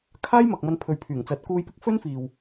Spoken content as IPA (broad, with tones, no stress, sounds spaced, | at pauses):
kʰ aː˥ j m ɐ˨ k̚ m ɐ˧ n pʰ ɵ˨˧ ɥ pʰ yː˨˩ ŋ t͡s ɐ˨˥ t̚ k uː˧ j p ɪ˥ k̚ f ɵ˥ n f iː˨ w